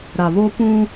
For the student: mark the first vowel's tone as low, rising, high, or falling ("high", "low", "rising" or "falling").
low